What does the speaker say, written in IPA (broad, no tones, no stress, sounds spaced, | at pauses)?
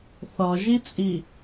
θ ɒ ʒ i t͡sʼ i